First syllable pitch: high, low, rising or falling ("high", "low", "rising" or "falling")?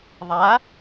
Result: rising